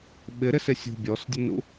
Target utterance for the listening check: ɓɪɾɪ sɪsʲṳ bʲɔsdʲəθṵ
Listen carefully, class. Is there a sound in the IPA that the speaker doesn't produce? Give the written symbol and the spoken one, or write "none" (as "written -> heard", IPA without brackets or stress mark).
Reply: θ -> n